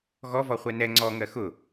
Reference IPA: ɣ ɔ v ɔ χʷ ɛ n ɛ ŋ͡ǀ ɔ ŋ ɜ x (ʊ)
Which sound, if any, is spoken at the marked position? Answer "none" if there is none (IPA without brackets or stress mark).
ʊ